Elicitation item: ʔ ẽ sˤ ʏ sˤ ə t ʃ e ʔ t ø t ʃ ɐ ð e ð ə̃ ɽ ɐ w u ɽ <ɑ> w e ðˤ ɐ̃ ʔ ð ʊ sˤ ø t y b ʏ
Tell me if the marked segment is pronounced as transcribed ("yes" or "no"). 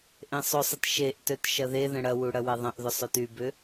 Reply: no